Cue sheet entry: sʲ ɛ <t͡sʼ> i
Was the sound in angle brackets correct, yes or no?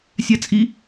yes